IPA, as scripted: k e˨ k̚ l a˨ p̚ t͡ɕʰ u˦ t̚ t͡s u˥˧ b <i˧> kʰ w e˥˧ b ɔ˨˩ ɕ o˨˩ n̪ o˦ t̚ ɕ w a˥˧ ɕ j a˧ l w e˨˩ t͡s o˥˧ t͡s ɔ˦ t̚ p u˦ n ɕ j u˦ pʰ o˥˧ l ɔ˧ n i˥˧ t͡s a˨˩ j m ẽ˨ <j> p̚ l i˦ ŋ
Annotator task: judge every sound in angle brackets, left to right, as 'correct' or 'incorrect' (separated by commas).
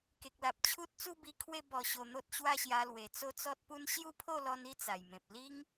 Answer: correct, incorrect